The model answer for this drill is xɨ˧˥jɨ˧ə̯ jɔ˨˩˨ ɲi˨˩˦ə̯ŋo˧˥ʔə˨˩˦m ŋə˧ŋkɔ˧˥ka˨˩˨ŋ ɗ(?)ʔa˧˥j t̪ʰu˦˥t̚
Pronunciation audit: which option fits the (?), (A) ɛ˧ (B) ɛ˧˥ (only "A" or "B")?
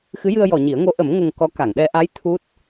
A